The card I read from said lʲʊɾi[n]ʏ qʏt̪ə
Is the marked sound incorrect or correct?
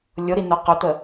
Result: correct